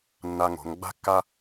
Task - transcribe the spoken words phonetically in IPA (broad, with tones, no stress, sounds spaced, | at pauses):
nː a˧ ŋ o̤˩˧ ŋ ɡ͡b a̤˧ kː a˧